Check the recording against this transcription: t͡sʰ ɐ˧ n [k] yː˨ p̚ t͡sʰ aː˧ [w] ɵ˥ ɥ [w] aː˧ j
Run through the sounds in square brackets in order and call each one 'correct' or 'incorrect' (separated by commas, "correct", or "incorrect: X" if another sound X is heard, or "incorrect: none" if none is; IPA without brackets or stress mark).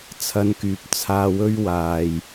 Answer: correct, correct, correct